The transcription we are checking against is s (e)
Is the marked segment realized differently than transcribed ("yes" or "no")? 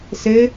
no